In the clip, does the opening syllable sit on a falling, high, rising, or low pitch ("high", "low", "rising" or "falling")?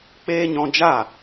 high